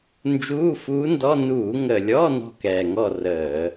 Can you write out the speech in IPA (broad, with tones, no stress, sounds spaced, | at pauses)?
n d͡ʒ uː˧˥˧ f uː˧˥ n d ɔ˧˥˧ n uː˧˩˧ ŋ ə˨˩ lʲ ɔ˧˥˧ n ɔ̤˥˨ k ɛː˨˩ ŋ ɔ˥˨ r əː˧˩˧